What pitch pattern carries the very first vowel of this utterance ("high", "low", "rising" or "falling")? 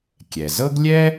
low